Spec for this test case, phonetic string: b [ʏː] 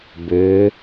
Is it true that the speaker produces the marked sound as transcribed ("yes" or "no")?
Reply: yes